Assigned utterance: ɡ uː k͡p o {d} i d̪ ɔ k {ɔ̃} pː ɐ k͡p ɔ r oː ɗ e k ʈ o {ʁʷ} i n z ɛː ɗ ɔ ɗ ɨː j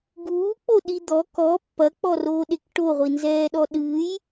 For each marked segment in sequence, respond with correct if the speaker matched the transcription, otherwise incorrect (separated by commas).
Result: incorrect, incorrect, correct